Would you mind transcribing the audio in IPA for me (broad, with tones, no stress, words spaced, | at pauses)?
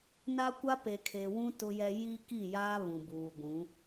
na˦kʷa˦ pe˨kʰe˨wũ˦ tʊ˦jɛ˦ ji˦ki˦˨jaː˦ βũ˨buː˨ɡʷũ˨˦